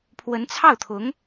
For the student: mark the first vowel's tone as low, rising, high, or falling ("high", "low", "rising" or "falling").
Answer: rising